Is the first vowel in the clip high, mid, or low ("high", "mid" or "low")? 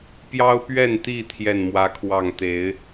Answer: low